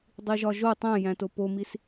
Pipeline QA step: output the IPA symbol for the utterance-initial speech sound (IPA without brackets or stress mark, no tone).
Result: dˤ